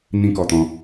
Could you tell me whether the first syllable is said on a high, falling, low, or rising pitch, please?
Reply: high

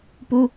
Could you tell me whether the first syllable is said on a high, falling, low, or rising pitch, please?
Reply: high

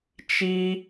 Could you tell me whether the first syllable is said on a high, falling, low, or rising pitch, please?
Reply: high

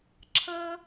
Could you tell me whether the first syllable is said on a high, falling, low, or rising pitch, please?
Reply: high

